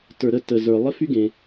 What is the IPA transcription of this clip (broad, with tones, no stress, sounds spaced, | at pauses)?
t ə˞˩ ɾ ə˧ t ə˩ z ə˞˩ lˠ ɘ˥ f y˥ ɡ ẽ˩